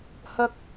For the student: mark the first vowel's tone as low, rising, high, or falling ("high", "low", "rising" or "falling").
low